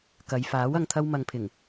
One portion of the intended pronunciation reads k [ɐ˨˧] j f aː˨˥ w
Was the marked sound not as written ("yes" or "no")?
no